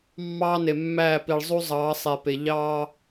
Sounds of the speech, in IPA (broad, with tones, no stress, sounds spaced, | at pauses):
mː ɑː˦ n e˨ mː æː˦˨ p i˨ ɭ zˤ u˦ zˤ ɑː˨˦ sˤ e˨ p e˨ ʎ ɑː˦